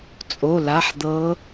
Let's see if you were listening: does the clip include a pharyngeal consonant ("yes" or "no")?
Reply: yes